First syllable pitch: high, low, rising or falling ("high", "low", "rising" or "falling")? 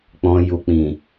low